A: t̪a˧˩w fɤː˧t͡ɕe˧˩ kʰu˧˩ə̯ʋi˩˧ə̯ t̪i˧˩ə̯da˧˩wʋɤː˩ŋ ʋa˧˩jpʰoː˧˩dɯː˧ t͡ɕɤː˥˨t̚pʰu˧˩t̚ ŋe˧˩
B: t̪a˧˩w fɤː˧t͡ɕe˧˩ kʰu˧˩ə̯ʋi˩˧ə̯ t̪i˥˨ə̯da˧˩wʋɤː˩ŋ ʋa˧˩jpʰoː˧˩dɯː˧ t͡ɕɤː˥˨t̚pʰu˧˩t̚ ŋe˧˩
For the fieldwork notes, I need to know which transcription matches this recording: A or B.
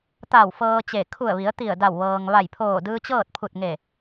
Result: A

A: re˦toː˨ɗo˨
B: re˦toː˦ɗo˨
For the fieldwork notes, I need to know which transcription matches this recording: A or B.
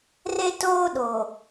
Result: B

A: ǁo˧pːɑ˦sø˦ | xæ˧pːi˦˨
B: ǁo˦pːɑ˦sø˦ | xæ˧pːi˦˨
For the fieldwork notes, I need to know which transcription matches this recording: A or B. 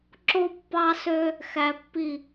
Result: B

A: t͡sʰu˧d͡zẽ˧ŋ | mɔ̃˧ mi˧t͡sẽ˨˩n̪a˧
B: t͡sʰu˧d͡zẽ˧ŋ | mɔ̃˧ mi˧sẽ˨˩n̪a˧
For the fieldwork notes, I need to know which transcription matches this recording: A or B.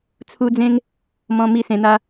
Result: B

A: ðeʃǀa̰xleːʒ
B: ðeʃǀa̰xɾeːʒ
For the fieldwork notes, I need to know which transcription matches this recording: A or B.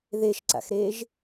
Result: B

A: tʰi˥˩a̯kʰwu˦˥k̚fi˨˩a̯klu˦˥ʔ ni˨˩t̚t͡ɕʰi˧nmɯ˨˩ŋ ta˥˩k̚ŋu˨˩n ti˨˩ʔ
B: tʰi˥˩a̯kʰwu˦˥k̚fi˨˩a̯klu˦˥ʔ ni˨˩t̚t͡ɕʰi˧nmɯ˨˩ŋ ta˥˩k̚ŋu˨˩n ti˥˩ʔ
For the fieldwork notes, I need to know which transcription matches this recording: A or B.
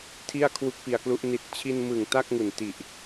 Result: A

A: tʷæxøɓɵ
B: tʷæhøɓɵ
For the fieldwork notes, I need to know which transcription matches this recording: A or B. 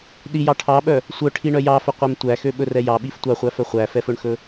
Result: A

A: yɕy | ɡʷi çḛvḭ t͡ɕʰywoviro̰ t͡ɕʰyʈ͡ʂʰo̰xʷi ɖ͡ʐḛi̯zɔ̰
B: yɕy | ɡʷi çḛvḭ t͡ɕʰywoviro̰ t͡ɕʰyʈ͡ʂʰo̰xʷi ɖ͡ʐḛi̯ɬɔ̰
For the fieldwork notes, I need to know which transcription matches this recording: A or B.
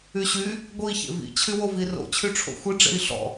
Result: B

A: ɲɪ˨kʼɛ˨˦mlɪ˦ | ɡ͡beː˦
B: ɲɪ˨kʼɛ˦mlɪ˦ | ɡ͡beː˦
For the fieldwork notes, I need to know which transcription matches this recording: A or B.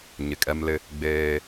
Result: B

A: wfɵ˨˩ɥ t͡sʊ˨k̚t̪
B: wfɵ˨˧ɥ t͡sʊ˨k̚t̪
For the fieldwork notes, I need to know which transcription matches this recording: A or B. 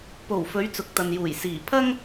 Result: B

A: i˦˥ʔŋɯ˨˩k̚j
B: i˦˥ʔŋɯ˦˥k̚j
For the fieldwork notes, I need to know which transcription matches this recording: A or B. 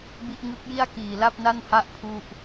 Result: B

